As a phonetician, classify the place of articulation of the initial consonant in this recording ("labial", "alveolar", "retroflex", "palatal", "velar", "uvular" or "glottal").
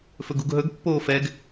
labial